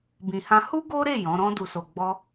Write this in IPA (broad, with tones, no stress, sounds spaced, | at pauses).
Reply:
b ĩ˨ h ã˧ h u˦ ɡ o˦ ɾ e˦˨ j ɔ̃˨˦ ɾ ɔ̃˧ d u˨ s o˨ ɡ͡b ɔ˧